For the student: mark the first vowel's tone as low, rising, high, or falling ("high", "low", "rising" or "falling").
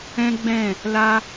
high